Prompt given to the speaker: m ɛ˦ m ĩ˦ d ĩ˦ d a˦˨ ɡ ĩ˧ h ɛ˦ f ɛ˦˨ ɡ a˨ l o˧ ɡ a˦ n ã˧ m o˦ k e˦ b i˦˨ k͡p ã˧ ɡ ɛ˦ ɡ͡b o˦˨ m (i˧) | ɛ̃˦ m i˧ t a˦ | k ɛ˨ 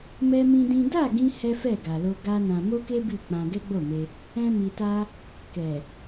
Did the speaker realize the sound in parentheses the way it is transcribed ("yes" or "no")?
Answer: no